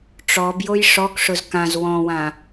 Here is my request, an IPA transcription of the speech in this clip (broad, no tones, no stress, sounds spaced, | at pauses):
ʈ͡ʂ ɔ b j o j ʂ ɔ k ʂ ʊ z k ã z w ɔ̃ w ã